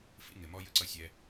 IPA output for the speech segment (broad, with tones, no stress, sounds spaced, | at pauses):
f ḭ˧ ŋ ɪ˨ m ɔ˧ j ə˧ ǀ ʌ˧ sʲ ɛ˦